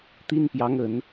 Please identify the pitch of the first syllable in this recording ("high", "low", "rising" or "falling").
high